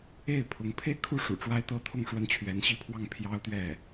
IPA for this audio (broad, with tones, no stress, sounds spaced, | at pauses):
e˥˩ ɪ̯ pʰ ʊ˧˥ ŋ pʰ e˥˧ ɪ̯ kʰ u˥˩ ʂ ṵ˨˩ ʈ͡ʂ w a˥ ɪ̯ t̪ ɤ˥ t̪ʰ ʊ˥˩ ŋ ʂ w ə˥ n t͡ɕʰ ɥ ɛ˧˥ n ɕ i˥ pʰ w ɑ˥˩ ŋ pʰ j ɑ˥ ʊ̯ t̪ ɥ ɛ˥˩